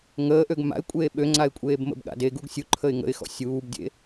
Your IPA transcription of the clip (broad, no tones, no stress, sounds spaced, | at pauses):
ŋ əː ʔ ø ɡ m a̰ ɪ̯ kʷʼ eː ɓ ø ŋ͡ǀ a ɪ̯ kʷʼ eː b m ə̰ b ɠ a̰ d e ɡ u ɡ sʲ u ǃʰ ə ɪ̯ ŋ ə̰ ɪ̯ x ɔ̰ sʲ uː b dʲ ḛ